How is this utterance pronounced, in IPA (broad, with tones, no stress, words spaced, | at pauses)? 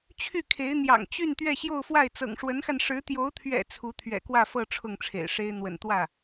t͡ɕʰy˥˩kʰe˧˥ɪ̯n̪jɑ̰˨˩ŋ t͡ɕy˥˧n t̪ɥɛ˥˧ɕjo˥˧ʊ̯fwa˥˩ɪ̯ t͡sɤ̰˨˩ŋʂwə˧˥nxa˧n ʂɻ̩˧˥t̪jo˧˥ʊ̯t̪ʰɥɛ̰˨˩ t͡sʰu˧˥ t̪ʰɥɛ̰˨˩kwä˥˧ fɤ˥˧ ʈ͡ʂʰʊ˥˩ŋʈ͡ʂʰḛ˨˩ɪ̯ʂe˥ɪ̯ n̪wə̰˨˩nt̪wä˥˩